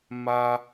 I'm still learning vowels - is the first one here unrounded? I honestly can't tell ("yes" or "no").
yes